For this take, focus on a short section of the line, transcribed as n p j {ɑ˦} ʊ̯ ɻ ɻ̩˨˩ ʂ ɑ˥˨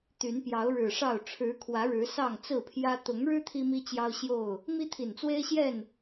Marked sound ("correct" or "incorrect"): incorrect